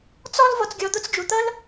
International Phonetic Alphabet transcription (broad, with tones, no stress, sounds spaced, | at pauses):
t͡s ɔ˥ l v ɔ˧ t͡s ɡʲ ɔ˧ d̪ ʊ˥ t͡s d͡ʒ u˩ t̪ ʌ˥ l